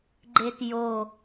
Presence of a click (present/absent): present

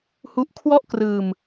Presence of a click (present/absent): absent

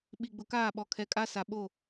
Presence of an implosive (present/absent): present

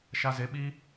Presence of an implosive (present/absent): present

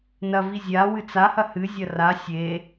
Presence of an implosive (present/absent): absent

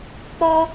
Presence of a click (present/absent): absent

